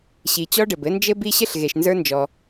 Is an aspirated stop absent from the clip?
yes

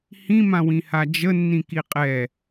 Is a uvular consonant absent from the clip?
no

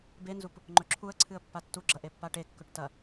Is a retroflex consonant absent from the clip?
no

